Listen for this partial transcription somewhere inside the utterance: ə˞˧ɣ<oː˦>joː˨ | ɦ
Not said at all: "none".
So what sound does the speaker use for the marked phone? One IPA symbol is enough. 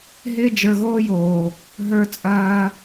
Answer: oː˦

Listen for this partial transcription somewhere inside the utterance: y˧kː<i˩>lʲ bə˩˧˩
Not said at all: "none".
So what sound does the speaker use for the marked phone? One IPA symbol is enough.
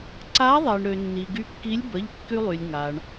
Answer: i˧˥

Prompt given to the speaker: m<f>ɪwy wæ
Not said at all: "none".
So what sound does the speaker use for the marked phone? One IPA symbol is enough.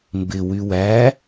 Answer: b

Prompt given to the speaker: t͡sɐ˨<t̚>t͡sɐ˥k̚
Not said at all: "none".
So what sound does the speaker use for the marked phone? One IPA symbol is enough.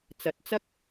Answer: t̚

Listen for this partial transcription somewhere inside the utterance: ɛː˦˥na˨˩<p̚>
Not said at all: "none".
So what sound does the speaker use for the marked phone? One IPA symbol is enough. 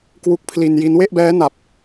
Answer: p̚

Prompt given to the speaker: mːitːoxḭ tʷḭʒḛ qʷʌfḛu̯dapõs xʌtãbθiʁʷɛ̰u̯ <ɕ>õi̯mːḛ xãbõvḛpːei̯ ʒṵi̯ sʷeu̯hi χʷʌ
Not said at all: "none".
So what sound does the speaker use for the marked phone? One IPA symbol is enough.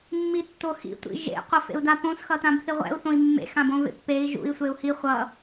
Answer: θ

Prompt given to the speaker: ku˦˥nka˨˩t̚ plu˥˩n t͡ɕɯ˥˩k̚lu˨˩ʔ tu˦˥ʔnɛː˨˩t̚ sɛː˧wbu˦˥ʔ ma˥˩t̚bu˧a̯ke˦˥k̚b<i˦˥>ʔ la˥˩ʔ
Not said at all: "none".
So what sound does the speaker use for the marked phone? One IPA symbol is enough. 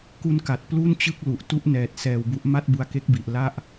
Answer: i˨˩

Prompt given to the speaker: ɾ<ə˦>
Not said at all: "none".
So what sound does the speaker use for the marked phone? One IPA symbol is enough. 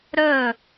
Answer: ə˦˨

